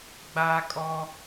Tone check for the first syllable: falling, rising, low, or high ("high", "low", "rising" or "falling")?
high